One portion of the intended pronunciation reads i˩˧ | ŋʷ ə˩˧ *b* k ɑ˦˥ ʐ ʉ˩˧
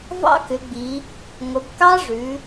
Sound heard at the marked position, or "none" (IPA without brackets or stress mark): b